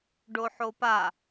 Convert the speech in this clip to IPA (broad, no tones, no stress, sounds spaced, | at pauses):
ɖ o ħ o p a